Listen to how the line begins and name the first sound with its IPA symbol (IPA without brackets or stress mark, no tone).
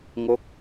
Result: ŋ